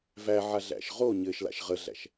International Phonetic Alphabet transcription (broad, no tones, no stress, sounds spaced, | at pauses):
v æ ʕ a ɮ æ̰ ʃ ʁ o ɲ ɘ ʃ l a̰ ʃ ʁ ə ɮ æ̰ ʃ